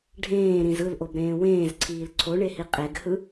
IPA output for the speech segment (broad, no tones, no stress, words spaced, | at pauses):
ɖʱẽːɾĩz ɯlʔobɾẽː wẽːzǀʰiːl ǀʰoɳehi qʼeɡhɯ